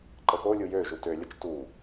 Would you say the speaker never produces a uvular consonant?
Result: yes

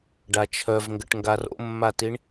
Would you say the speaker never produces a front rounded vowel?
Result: no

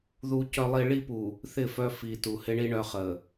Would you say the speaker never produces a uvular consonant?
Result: no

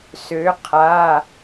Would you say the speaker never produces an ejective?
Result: yes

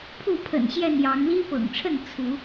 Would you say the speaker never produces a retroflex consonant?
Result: no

